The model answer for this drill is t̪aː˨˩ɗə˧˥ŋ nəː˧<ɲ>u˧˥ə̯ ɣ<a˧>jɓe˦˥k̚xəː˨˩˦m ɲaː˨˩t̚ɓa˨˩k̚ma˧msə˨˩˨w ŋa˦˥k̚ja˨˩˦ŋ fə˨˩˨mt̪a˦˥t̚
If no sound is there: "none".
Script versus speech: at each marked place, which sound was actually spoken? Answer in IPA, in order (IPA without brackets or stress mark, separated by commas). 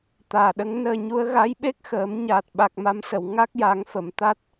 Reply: ɲ, a˧˥